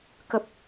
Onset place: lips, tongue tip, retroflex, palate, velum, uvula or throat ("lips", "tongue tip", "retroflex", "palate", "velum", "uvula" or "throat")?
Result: velum